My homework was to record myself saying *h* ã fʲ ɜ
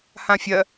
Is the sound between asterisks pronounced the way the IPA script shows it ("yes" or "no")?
yes